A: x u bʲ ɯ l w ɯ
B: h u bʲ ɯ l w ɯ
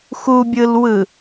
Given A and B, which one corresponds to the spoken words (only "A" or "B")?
A